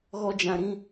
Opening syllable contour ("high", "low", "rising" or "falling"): high